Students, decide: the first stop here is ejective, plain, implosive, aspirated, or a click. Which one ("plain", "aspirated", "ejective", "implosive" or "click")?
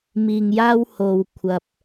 aspirated